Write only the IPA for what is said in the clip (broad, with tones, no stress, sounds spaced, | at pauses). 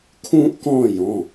kʰ ũː˥ ʔ k ɔ̃ː˥˧ j ɔ̃˩˧˩